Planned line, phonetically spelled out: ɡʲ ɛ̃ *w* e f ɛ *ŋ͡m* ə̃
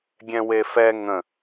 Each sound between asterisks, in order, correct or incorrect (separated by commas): correct, incorrect